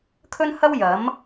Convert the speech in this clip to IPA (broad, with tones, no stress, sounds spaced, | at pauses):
kʰ ɵ˥ n h ɐ˥ w j ɐ˨˥ m